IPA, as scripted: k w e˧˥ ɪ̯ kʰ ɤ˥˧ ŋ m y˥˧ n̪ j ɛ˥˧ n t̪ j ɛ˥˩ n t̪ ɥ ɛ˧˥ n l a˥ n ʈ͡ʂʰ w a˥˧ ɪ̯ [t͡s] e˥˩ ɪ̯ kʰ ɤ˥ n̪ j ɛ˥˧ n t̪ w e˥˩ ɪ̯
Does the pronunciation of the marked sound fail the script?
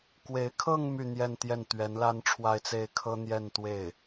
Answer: no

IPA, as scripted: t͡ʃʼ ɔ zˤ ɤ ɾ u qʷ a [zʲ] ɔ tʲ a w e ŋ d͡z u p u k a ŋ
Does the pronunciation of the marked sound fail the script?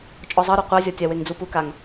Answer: no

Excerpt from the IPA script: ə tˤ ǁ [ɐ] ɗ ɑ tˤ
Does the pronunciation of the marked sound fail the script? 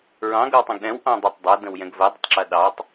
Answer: no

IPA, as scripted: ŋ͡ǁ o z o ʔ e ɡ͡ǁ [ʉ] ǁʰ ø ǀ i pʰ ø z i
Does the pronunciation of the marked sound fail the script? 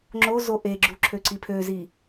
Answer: yes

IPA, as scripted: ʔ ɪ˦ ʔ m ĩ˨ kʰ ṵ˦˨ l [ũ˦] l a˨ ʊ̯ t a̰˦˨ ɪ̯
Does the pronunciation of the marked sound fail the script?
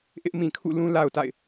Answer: no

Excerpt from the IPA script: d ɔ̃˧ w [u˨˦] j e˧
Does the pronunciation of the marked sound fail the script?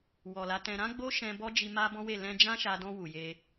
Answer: yes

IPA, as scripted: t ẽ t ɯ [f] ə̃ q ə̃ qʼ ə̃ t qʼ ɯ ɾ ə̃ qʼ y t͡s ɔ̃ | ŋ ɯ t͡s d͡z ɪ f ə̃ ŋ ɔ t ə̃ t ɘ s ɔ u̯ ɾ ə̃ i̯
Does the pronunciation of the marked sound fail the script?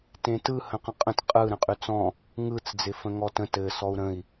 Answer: yes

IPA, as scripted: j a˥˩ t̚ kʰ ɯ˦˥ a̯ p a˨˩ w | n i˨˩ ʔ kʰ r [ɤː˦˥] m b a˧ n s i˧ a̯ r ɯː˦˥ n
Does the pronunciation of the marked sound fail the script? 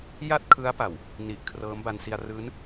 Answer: no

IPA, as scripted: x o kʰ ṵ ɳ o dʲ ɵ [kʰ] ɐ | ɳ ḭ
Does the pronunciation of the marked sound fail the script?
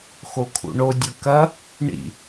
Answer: yes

